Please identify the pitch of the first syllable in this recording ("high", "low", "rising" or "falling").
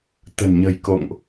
low